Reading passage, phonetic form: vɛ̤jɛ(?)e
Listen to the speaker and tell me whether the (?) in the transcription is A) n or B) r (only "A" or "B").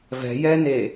A